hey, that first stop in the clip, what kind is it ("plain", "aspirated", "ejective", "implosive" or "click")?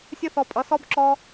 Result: ejective